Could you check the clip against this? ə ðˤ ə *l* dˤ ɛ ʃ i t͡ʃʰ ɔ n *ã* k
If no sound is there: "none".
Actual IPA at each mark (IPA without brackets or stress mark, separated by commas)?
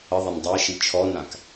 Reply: n, ã